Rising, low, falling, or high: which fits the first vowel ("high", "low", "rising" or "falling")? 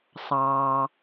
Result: low